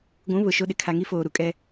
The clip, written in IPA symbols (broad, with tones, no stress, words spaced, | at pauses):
ɡʷũ˨˦ βʊ˨ʃo˦ ɗɪ˨ kʰa˨ŋi˦ foː˨ɾu˨kʼɛ˦